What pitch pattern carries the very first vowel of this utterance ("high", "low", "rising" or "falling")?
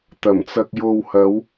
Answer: low